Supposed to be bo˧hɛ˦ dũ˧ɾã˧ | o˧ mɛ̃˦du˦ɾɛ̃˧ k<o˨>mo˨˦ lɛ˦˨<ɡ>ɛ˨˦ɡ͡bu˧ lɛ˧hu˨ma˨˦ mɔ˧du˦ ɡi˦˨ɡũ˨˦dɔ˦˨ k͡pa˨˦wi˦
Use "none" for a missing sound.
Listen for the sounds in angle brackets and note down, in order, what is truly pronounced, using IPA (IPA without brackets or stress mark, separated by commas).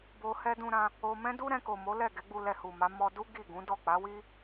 o˨, ɡ